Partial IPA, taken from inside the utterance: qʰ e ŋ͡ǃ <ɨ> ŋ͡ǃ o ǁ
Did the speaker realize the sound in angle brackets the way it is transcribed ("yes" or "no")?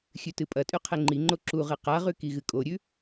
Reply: no